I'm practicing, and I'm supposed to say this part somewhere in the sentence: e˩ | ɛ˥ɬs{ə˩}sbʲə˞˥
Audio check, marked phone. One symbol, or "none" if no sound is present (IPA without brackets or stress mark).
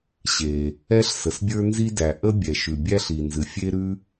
ə˩